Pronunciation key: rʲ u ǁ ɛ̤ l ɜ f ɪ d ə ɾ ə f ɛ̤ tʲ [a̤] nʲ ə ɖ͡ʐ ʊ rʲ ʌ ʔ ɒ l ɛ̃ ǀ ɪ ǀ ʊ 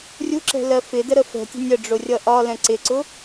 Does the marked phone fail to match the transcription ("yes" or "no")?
yes